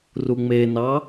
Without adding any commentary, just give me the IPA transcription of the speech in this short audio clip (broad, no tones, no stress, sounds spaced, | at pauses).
r u ŋ͡m e n ɑ